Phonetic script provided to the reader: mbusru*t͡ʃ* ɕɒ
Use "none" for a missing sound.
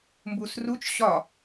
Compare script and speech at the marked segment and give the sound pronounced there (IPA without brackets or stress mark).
t͡ʃ